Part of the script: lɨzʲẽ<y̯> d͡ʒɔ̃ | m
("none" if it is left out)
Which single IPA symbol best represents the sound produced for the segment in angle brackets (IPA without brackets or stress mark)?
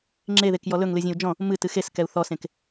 u̯